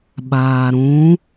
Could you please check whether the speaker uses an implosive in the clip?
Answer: yes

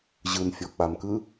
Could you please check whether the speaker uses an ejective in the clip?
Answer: no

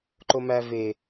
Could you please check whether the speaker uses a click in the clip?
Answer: yes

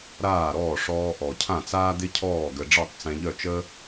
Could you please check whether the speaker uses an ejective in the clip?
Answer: no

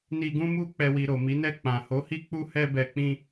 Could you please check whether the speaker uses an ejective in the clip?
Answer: no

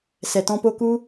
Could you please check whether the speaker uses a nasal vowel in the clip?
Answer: yes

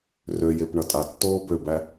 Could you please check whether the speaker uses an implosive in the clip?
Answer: no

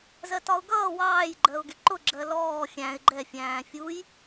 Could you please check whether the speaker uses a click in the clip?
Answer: yes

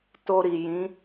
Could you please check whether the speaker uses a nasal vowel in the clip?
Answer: yes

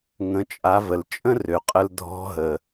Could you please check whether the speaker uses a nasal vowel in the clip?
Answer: yes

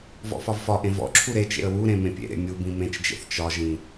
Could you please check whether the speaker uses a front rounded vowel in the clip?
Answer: no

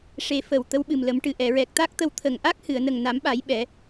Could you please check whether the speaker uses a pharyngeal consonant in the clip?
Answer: no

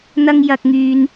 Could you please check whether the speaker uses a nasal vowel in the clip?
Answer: no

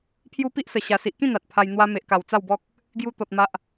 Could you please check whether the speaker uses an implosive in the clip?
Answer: no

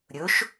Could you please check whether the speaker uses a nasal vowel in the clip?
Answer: no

